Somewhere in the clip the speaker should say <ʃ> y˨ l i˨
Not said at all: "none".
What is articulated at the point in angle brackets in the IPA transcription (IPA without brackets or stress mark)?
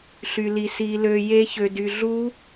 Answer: ɬ